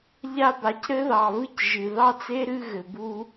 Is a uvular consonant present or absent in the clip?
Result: absent